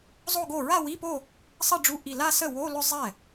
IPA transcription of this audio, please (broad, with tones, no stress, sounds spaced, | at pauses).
zˤ o˥˧ ɡ o˥˩ ɹ a˥˧ w i˧˥˧ p o˥˧ | sˤ ə˥˧ ɖ͡ʐ u˧˥˧ ʔ i˧˩ l a˥˧ s ə˥˩ w o˧˥˧ l ʏ˥˧ zˤ ɛ˥˩